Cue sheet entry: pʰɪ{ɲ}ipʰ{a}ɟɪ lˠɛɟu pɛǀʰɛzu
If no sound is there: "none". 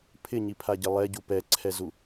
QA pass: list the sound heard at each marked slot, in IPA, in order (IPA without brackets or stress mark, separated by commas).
ɲ, a